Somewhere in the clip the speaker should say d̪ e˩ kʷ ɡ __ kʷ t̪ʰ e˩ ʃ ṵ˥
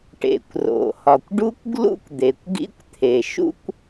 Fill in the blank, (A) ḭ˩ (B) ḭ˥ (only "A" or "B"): B